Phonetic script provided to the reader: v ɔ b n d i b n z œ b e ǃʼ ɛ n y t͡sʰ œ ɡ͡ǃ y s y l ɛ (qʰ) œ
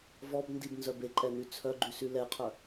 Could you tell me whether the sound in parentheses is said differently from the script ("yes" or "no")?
no